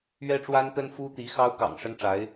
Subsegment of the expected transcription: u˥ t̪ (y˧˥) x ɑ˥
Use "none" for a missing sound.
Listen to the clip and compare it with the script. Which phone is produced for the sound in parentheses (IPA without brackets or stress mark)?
i˧˥